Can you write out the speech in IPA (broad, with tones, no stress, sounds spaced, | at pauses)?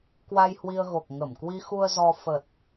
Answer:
k w a˧ j h w i˧ ə̯ ɣ o˨˩ k̚ ŋ ə˧˩ m k w i˧ x u˧ ə̯ z ɔ˧ f ə˨˩ t̚